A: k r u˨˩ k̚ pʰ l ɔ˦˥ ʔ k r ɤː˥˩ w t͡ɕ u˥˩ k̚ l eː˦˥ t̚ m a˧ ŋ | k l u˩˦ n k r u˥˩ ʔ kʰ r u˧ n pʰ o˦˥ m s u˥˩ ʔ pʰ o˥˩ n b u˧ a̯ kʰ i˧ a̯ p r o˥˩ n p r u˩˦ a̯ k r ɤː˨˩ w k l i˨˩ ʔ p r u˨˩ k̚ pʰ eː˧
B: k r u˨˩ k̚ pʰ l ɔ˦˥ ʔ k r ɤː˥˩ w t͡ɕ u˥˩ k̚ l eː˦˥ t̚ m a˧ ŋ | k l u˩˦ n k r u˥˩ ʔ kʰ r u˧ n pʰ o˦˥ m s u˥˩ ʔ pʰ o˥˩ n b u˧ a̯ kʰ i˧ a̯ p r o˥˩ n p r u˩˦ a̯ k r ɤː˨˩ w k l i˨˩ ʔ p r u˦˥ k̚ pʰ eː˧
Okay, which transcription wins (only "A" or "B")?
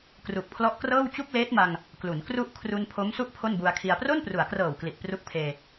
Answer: B